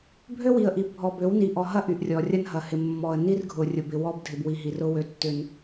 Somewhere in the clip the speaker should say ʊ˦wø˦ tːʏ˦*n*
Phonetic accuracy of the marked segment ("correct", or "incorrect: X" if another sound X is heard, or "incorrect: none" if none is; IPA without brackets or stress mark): correct